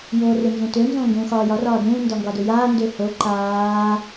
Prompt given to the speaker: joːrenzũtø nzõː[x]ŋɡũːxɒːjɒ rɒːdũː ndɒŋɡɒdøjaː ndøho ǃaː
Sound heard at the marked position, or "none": none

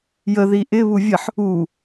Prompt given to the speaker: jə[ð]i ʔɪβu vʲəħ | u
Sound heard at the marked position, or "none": ð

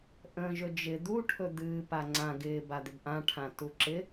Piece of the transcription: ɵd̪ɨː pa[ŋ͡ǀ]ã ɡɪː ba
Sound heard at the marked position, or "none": ŋ͡ǀ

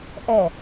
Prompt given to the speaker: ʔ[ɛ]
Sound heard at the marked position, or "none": ɛ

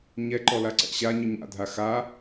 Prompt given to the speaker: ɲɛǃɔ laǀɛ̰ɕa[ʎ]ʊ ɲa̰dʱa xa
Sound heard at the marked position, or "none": ɲ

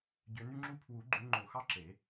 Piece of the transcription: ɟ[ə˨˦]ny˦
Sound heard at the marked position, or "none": ø˨˦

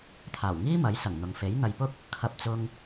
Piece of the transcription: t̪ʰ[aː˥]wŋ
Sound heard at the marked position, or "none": aː˨˩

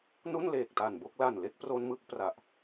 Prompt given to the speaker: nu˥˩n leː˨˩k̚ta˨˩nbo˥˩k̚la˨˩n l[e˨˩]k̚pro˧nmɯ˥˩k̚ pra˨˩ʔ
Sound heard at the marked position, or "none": e˥˩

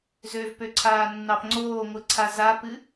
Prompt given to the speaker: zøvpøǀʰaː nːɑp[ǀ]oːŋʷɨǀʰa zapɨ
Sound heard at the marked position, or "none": ŋ͡ǀ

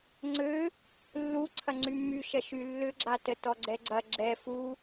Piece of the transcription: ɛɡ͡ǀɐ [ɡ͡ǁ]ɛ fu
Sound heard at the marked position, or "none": ɡ͡ǁ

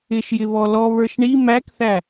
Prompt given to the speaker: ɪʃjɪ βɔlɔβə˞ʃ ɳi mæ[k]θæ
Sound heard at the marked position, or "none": k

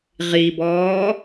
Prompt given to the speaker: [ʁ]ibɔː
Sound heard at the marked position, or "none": ʁ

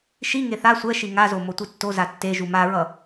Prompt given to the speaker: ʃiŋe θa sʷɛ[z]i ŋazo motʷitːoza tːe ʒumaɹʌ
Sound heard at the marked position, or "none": ʃ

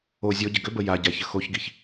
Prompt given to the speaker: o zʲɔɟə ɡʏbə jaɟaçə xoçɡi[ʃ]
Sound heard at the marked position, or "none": ç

